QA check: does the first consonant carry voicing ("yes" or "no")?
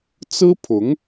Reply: no